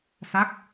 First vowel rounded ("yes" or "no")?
no